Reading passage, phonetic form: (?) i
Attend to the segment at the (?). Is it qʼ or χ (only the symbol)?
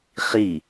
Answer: χ